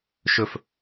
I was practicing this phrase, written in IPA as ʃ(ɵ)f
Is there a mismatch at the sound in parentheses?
no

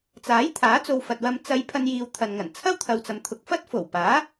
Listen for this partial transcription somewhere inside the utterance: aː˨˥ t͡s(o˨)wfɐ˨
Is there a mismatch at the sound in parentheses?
no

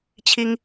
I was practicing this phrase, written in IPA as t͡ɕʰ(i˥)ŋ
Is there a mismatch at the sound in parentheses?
no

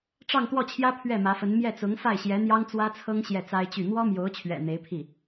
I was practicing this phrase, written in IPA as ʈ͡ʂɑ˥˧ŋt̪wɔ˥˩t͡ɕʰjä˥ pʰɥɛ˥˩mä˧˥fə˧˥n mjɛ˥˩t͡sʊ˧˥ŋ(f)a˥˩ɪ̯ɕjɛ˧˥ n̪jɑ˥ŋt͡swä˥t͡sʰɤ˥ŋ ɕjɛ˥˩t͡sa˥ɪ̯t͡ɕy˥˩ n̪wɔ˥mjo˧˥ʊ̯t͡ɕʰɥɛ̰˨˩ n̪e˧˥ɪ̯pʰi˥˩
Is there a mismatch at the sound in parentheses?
no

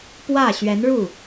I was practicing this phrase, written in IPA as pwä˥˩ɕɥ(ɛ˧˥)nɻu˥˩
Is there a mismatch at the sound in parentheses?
no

